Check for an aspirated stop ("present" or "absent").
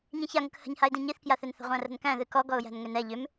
absent